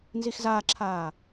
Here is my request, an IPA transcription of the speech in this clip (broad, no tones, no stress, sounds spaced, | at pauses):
n z i x z aː ǁʰ aː